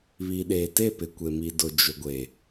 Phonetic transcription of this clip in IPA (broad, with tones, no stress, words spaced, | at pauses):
βi˨ɗeː˨te˦˨pɪ˨ kʷe˨mi˨dʊ˨ d͡ʒʊ˨ɡʷe˨